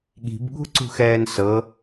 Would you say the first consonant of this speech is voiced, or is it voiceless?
voiced